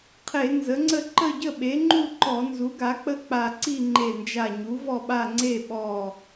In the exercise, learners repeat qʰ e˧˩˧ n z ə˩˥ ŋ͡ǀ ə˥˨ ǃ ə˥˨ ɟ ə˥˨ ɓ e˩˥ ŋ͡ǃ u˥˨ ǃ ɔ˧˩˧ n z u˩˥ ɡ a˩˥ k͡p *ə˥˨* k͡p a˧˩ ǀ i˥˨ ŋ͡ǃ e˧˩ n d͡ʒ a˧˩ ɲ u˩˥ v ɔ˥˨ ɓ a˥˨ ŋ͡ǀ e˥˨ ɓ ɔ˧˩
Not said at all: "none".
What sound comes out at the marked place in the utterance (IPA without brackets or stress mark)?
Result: ə˥˨